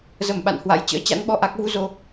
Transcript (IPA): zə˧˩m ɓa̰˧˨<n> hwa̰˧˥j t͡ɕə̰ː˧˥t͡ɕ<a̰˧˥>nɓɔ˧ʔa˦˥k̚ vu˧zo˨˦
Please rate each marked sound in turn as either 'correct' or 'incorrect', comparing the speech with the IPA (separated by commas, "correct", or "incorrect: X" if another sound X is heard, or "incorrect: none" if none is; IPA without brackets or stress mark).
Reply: correct, correct